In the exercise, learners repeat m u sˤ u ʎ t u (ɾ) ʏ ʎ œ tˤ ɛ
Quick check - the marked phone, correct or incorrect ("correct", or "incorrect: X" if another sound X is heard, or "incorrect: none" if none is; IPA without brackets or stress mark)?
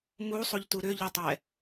correct